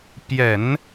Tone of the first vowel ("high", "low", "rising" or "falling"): low